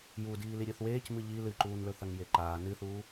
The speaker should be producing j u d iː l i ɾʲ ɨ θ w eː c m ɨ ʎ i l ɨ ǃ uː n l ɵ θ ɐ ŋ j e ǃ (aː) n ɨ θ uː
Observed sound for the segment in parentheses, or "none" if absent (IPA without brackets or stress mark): aː